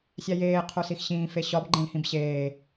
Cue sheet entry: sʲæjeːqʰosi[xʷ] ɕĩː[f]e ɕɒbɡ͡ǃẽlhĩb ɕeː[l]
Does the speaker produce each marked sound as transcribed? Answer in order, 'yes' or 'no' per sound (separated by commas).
no, yes, no